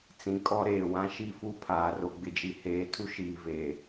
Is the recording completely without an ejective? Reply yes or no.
no